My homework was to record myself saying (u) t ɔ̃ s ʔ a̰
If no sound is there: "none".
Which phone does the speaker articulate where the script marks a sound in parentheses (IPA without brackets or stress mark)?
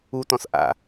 u